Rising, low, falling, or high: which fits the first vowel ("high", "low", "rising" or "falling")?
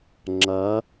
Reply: rising